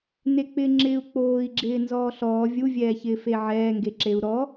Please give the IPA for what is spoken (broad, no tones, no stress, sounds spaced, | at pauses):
n e k͡p ɪ ŋ͡ǁ ɪː u̯ k͡p oː i̯ ɡ͡ǁ ɪː n z ɔː ɬ ɔː vʲ u vʲ ɛː ç ɪː f e ʕ ɛː ŋ ɡ e ǁ e u̯ ɾ ɔ